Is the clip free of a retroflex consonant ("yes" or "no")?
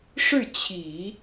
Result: no